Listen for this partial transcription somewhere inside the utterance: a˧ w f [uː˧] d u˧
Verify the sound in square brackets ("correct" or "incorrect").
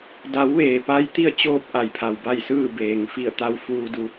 correct